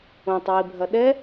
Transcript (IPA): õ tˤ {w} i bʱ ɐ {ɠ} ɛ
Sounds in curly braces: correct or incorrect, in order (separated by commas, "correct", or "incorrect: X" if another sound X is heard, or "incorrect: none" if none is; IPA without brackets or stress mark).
correct, incorrect: ɗ